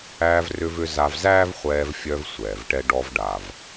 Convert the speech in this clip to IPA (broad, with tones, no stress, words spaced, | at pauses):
æː˧vrʏ˧vʏ˧ za˧vzæː˥vχʷɛː˧vfʲœ˧v sʷɛː˩vʈɛ˧ɖɔ˧v ɖa˩v